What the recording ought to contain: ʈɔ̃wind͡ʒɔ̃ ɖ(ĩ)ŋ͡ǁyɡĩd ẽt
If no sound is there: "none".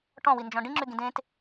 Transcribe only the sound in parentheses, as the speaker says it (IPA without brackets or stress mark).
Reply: ĩ